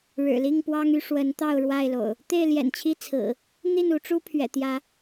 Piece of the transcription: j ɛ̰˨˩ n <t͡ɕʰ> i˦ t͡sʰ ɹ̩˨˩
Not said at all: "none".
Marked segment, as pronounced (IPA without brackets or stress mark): t͡ɕʰ